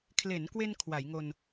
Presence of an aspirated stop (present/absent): present